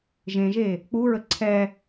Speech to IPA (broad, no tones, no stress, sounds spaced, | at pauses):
ʒ ẽ ʒ e | k͡p u ɹ ə ǀʰ ɛ